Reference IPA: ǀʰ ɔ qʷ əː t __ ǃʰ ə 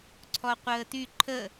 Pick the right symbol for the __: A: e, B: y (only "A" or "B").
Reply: B